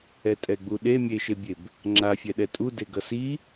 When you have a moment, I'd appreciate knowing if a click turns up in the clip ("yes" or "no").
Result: yes